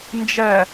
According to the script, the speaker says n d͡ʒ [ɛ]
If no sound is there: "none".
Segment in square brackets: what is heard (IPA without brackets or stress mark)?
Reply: ɛ